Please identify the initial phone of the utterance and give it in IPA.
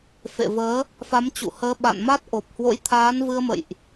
f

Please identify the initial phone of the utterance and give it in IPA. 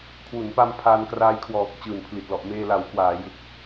kʰ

